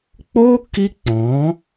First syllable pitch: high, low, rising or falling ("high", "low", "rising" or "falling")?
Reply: high